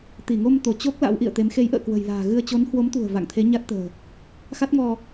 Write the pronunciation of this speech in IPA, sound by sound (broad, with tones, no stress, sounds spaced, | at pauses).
t̪ i˧˩ ŋ o˧ m t̪ o˧˩ t͡ɕ o˦˥ k̚ l a̰˧˥ w ʔ ḭ˧˨ ə̯ t̪ e˨˦ m x e˨˦ j ʔ ə̰ː˧˨ k w ə̤˨˩ j l a̤ː˨˩ ɣ ɨ˧ ə̯ t͡ɕ o˨˦ n h w o˨˦ m t̪ ṳ˨˩ ə̯ v a̰˧˨ ŋ t̪ʰ e˨˦ ɲ a˦˥ t̚ t̪ ə̤ː˨˩ | x a˦˥ t̚ ŋ ɔ˧